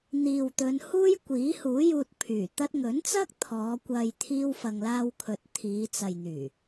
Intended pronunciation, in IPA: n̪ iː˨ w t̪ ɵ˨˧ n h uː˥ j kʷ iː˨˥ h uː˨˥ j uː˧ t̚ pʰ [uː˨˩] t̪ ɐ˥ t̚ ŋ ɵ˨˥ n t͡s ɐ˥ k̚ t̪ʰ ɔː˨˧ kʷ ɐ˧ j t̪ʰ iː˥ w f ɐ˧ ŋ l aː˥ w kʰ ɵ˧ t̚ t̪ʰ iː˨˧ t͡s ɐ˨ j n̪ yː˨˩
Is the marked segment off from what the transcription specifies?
yes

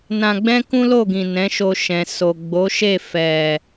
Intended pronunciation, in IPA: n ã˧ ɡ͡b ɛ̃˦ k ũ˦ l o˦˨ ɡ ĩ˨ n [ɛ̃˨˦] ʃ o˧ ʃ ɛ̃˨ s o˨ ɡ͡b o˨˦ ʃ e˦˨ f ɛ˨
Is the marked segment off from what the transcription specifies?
no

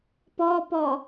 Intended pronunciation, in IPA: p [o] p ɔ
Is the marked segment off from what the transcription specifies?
yes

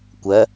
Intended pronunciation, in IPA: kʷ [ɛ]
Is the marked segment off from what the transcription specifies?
yes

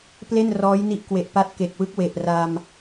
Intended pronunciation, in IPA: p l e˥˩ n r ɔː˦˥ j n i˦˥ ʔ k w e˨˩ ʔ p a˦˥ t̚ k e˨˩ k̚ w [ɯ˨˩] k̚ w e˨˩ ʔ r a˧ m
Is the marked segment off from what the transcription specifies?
yes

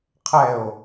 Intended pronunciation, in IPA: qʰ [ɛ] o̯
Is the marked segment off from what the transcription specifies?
no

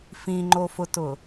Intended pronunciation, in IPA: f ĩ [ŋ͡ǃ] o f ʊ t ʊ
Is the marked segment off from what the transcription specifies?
no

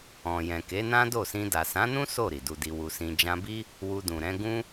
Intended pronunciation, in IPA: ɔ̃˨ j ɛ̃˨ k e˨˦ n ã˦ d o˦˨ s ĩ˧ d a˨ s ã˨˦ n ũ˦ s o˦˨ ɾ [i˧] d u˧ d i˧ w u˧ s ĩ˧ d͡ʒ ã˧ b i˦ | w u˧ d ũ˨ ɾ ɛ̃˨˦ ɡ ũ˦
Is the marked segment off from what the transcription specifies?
yes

